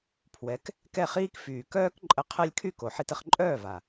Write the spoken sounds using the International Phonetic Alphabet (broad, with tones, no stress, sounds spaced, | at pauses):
pʰ w ɛ˩˥ k | k ɛ˥˩ χ iː˥ k f yː˩ k œː˥ k ǃʼ ə˧ qʰ ɛ˧ lʲ kʰ y˥˩ k o˩ ħ i˧ t ə˧ χ ǃʼ œː˥˩ v a˩